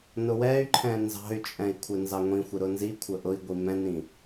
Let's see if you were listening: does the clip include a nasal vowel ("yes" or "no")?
yes